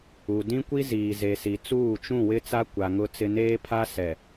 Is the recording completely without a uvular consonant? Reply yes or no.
yes